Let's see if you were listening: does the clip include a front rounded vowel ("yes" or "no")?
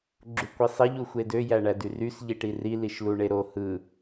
yes